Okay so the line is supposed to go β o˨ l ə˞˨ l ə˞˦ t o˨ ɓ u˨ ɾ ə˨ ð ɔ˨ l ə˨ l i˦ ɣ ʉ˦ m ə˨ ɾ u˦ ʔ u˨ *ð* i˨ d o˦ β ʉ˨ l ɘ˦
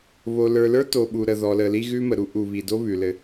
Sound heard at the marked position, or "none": β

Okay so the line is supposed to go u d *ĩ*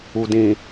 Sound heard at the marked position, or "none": ĩ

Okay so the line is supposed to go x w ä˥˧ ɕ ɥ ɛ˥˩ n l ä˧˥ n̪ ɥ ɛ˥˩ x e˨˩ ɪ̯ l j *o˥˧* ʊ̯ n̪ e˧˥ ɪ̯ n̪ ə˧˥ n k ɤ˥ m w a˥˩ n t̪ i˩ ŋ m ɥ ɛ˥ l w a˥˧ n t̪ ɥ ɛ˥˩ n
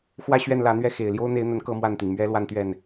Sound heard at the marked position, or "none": o˥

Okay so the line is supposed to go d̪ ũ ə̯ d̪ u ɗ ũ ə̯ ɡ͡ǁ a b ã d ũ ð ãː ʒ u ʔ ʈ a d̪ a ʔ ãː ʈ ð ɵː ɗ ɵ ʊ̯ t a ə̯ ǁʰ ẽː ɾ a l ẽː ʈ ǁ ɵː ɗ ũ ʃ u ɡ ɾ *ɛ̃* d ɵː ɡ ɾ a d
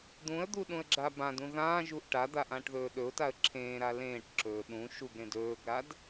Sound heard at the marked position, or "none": ẽ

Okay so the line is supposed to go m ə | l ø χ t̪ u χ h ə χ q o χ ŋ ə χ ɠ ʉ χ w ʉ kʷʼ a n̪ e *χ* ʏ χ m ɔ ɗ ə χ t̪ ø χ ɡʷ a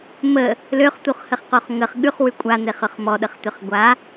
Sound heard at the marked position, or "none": χ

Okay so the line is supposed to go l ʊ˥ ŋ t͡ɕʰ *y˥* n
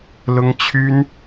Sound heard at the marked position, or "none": y˥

